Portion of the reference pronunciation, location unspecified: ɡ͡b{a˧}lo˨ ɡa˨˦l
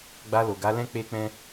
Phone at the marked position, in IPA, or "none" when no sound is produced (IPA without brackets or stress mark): a˧